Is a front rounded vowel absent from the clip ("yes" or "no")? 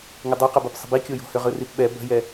no